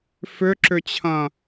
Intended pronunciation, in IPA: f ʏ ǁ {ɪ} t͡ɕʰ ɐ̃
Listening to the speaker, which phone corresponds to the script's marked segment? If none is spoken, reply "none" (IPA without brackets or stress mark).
ʏ